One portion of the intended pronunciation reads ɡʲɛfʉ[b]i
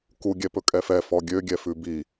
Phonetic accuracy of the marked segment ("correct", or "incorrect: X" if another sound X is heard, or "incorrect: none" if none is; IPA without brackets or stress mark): correct